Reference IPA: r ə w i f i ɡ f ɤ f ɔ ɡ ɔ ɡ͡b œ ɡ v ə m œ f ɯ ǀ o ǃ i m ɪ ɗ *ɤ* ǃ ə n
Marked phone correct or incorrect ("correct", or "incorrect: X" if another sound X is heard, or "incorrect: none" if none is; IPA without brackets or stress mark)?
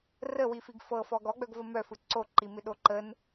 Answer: incorrect: o